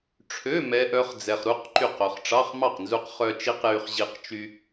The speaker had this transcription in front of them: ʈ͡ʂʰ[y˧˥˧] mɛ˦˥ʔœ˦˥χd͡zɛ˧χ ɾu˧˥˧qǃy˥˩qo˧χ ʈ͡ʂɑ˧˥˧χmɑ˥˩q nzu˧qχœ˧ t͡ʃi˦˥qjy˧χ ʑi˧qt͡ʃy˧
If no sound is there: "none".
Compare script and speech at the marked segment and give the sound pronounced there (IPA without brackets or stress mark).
ø˧˥˧